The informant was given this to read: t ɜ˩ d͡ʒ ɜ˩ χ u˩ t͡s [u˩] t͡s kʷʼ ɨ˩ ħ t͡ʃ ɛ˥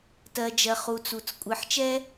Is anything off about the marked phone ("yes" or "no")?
no